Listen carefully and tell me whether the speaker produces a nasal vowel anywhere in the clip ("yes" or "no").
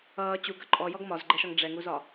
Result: no